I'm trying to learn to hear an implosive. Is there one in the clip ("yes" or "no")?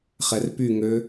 no